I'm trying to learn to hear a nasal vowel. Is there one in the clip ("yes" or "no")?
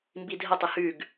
no